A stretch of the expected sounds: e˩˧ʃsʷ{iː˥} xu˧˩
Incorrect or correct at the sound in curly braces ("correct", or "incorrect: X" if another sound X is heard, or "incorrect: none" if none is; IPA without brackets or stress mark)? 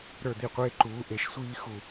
correct